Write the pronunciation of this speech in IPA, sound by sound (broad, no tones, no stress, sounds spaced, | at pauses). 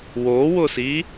w o w ʊ s i